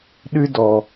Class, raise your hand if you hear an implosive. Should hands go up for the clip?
yes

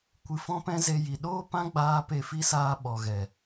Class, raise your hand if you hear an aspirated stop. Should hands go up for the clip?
no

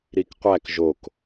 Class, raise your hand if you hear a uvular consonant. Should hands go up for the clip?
yes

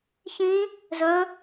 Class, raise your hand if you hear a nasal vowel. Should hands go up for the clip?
yes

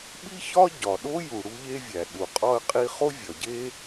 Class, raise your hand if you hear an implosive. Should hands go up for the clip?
yes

